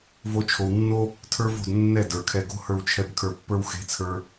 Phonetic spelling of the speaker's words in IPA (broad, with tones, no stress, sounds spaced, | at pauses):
v o˧ t͡ʃʰ o˨ w nː o˦ | tʰ ə˞˦ v o̤˦˨ d nː ɛ˦˨ d ə˞˨ kʰ ɛ˧ ɡ o̤˦ h ə˞˧ w t͡ʃʰ ɛ˧ b kʰ ə˞˧ pː ə˞˦ w x e̤˨˦ t͡sʰ ə˞˧